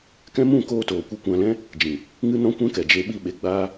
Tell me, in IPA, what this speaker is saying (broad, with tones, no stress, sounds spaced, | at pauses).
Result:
k ɛ̃˦ m ũ˦˨ k oː˦ t oː˨ kʷ ɛ˦ kʷ ã˧ l ɛ̃˦ | d͡ʒ ĩ˨ | ŋ ɨ˦ n ɔ̃˦ kʷ ɛ̃˦ k ɛ˨ d͡ʒ e˧ ɓ i˧ ɓ e˧ ɡ͡b aː˦